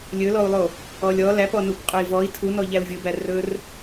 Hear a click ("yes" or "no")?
no